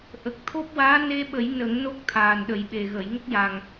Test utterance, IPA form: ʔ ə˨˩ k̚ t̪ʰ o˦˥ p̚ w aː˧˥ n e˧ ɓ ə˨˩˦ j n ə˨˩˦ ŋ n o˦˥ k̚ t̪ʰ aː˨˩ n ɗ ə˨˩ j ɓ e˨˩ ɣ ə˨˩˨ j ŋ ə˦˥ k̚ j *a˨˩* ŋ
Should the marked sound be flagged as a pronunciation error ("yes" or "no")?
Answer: no